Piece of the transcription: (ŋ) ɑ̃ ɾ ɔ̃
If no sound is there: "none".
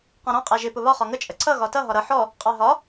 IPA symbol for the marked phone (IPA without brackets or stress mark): q